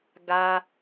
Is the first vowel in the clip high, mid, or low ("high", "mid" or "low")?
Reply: low